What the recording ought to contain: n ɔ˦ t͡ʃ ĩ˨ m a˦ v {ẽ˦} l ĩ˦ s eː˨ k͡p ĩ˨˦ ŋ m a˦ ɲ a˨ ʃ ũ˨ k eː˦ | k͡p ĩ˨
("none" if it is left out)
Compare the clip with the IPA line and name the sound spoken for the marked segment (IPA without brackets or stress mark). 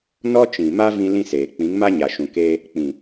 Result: ĩ˦